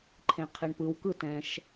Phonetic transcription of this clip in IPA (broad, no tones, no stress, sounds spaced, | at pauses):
ǃʰ ẽ qʰ i ɳ p ɯ w k ɯ t ɛ̃ ʃ